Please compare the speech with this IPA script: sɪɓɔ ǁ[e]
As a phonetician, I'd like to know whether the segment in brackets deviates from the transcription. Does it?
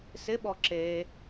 no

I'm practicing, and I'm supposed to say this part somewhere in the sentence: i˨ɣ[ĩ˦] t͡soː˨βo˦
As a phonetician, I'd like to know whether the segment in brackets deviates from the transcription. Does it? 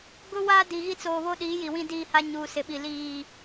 yes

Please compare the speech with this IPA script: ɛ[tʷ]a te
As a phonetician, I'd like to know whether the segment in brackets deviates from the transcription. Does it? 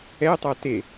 yes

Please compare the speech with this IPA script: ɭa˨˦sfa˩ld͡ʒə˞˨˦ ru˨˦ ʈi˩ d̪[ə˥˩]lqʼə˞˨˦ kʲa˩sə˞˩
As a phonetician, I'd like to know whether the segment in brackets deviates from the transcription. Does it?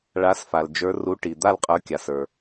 yes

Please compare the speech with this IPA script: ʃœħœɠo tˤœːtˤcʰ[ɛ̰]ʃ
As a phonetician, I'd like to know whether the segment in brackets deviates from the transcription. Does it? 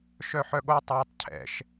no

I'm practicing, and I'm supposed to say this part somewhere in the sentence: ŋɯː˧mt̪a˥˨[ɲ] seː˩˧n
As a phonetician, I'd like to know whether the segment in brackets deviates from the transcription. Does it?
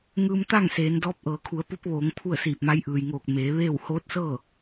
yes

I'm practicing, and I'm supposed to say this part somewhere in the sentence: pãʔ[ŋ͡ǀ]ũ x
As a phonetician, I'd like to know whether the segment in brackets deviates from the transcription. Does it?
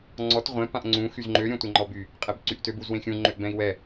no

